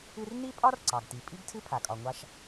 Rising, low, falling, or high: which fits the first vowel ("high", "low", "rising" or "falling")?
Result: high